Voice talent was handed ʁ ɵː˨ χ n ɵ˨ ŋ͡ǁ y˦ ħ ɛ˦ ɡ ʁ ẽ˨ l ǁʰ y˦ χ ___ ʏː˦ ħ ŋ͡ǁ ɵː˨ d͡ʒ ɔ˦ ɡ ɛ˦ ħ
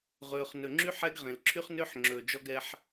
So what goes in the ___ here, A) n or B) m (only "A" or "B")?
A